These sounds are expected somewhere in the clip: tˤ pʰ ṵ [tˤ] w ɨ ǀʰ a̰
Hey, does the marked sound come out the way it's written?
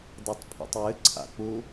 yes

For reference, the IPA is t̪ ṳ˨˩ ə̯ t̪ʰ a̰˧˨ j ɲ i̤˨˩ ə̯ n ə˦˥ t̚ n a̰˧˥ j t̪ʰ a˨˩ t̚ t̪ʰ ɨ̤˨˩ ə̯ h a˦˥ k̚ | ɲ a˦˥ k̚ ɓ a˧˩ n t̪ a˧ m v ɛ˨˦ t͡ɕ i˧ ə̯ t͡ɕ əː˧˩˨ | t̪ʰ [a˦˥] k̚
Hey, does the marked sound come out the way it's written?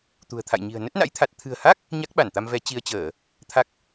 yes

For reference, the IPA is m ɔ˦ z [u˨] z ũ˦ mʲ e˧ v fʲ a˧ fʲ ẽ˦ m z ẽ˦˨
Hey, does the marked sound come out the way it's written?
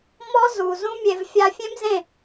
yes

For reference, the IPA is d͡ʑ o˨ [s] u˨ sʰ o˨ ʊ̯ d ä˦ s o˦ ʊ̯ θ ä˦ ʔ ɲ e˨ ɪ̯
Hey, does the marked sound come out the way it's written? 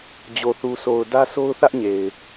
no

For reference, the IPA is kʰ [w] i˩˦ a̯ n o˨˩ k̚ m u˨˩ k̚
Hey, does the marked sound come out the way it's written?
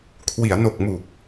yes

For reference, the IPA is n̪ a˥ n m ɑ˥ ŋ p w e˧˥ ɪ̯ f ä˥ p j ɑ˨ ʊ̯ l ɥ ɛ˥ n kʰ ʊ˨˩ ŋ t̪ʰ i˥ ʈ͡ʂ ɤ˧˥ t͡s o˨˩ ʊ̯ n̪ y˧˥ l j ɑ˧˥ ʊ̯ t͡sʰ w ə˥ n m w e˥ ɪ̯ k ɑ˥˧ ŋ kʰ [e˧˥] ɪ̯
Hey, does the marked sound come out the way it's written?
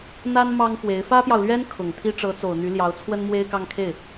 no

